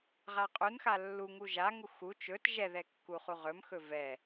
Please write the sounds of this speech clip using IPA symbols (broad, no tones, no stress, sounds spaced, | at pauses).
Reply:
ʁ a qʼ u n x a lː u ŋ u ʒ a ŋ u x u t͡ʃ ɵ t ʒ ɛ ð ɛ kː u χ u ʁ ɵ m x ɵ v ɛ